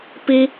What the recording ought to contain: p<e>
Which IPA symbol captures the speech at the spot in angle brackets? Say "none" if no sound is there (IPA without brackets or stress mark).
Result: i